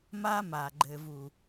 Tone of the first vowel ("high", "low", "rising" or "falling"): high